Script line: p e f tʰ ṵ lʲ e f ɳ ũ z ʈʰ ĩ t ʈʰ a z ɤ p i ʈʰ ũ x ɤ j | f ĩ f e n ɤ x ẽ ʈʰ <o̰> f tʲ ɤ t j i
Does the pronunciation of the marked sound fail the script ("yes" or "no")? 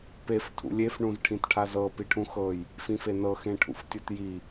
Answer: yes